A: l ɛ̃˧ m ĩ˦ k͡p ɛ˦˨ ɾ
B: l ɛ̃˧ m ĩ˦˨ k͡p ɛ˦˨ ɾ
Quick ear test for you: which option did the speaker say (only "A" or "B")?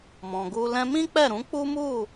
A